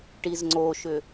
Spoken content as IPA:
ʈizŋ͡ǀoʃʏ

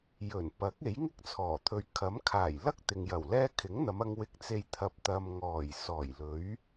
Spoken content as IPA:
jɵ˨˩n pɐ˨˥k̚e˨˥jŋɪ˥k̚t͡sʰɔː˨˩ t̪ʰɵ˧ɥ kʰɐ˨˥mkʰaː˨˩jlɐ˥k̚ t̪ɪ˨ŋjɐ˨˩wlɛː˥ kʰɪ˨˥ŋn̪ɐ˨˧mɐ˧ŋ wɪ˧k̚t͡se˧j t̪ʰɐ˧p̚t̪ɐ˧m ŋɔː˨˩jsɔː˨˩jlɵ˨˥ɥ

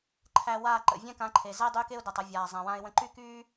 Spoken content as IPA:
ǃʰæ˧waː˦˨ ǃə̰˨vʲɛ̃˦kã˨˦ǃʰe˨ zɛ˦ dˤyː˧k e˦ʊ̯dæ˨tˤ ə˧vʲaː˨ zˤã˨wã˧ɪ̯wə̃˧ ǃy˦kyː˦

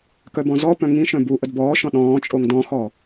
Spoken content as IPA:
kœbɔ̃zɔpœ̃ ŋĩʃ œ̃buʔəd bɔːʃɔ̃ ɗɔ̃ːt͡ʃʼoŋ dɔ̃xɔ

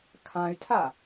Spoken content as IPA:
kʰãy̯tʰa

